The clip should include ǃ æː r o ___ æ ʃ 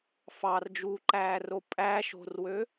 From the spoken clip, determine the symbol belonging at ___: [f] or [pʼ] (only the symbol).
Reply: pʼ